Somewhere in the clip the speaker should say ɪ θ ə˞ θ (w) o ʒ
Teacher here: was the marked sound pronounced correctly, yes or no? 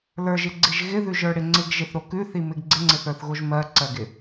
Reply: no